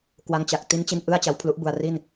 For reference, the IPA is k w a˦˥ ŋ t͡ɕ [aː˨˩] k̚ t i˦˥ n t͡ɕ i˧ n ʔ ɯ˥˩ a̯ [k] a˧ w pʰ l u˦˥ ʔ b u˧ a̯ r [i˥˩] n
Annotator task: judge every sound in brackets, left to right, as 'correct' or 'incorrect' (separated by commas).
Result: incorrect, incorrect, correct